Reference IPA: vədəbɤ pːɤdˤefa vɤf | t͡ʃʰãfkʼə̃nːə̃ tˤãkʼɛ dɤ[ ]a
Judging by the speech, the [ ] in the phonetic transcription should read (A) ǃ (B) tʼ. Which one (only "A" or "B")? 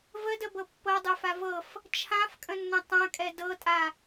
B